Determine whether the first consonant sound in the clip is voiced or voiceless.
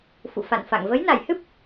voiceless